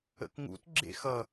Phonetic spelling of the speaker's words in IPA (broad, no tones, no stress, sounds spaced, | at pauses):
ə̰ k ŋ ṵ t ɡ͡ǁ ḛ x ʌ